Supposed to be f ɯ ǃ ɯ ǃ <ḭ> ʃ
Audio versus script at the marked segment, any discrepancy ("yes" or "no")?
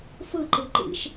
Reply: no